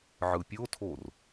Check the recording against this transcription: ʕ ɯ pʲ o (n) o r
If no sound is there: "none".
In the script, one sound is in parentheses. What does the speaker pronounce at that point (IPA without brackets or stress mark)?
tʰ